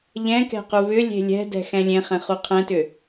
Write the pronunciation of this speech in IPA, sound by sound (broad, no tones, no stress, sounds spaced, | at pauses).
ʎ ɛ̃ k ɛ̤ q u β ʏ lʲ e̤ lʲ ɛ̤ d ɛ̤ x ɛ̃ lʲ ẽ χ ɛ̃ χ u qʰ ɛ̃ t ʏ